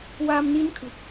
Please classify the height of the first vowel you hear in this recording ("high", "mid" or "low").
low